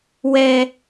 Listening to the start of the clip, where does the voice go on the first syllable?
high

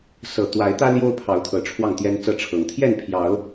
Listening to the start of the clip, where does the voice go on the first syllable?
low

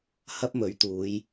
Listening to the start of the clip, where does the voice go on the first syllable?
high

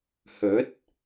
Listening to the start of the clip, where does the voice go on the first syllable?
rising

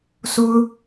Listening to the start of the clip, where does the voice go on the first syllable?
high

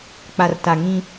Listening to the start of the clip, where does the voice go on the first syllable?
low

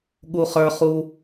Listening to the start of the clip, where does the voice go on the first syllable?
low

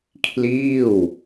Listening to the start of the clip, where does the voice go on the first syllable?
falling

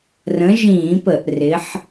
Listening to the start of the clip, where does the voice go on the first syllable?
rising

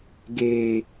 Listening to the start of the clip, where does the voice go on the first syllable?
low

